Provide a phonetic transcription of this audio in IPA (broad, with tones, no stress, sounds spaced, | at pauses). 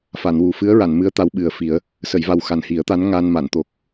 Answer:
f a˨˩˨ n w u˨˩ f ɨ˧˥ ə̯ ɹ a˨˩˨ n m ɨ˧˥ ə̯ t̪ a˧˥ w ɓ ɨ˨˩ ə̯ f i˨˩˦ ə̯ | s ə˨˩˨ j v a˨˩ w x a˨˩ n h i˨˩˦ ə̯ t̪ a˧˥ n ŋ a˧ n m a˨˩˨ n t̪ o˨˩ k̚